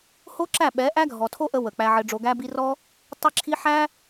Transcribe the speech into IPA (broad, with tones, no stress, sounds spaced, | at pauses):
h o˦ ǁ æ˦˨ ɓ ɛ˨˦ ʔ æ˦ ɡʱ ɔ˨ tʰ o˦ ʔ ə˧ w ə˨ k͡p æ˧ ʕ ɘ˧ ɖ͡ʐ o˧ ɡ æ˦ b i˦ r ɔ˦ | tˤ e˦ ǁʰ i˦ ħ æ˦